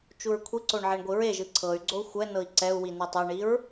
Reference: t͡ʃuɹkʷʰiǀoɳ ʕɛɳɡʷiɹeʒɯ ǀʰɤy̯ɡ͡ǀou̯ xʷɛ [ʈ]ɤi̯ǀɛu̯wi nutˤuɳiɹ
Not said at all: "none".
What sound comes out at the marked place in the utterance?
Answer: n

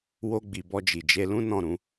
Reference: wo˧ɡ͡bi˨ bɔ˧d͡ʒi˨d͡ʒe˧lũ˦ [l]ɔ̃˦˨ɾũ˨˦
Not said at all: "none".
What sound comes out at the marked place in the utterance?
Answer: n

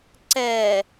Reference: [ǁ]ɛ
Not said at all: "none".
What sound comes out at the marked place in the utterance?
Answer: ǀ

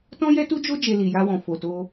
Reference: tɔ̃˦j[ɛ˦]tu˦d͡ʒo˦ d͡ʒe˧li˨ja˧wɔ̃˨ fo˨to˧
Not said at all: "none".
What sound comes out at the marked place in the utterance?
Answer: ɛ˦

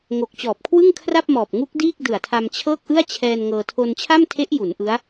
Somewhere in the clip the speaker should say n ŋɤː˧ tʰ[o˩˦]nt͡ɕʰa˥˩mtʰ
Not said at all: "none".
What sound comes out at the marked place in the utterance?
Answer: o˧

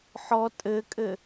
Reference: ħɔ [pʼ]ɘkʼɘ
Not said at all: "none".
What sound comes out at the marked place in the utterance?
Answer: tʼ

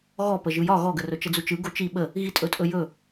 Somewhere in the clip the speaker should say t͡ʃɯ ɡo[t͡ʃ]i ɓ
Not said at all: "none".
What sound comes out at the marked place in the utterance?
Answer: t͡ʃ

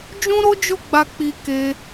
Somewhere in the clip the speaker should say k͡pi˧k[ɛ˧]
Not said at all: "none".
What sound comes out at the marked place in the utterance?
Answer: e˧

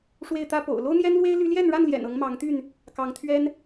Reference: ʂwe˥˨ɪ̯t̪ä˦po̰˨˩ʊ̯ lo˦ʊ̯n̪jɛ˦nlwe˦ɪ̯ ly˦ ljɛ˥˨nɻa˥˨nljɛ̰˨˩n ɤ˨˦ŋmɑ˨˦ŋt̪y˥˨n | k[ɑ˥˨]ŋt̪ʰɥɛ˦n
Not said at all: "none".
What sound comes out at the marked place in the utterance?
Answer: ɑ˨˦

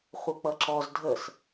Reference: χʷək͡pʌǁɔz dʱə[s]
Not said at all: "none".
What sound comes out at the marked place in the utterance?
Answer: s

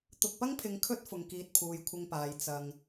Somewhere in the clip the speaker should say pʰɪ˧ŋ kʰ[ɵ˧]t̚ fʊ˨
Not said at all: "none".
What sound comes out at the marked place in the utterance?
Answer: ɵ˥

